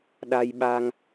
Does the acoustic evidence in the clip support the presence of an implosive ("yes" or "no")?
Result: yes